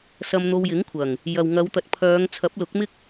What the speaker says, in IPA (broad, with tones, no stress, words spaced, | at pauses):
sɐ˧mn̪o˧wjɪ˨˥ŋkʷʰɐ˨˩ŋ | jɐ˨w ŋɐ˨˧wt̪ɐ˨t̚pʰœː˨˧ŋ t͡sʰɐ˨˥p̚lʊ˨˥k̚mɪ˥k̚